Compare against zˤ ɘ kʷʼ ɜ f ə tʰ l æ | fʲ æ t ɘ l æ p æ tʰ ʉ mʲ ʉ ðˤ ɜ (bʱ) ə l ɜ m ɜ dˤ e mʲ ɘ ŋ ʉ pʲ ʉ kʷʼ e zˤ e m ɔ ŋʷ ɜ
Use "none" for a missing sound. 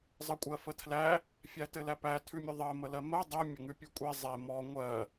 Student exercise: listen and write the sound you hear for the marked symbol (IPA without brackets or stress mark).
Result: m